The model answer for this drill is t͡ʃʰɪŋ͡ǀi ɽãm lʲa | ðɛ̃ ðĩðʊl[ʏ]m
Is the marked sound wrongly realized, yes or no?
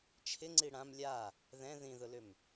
no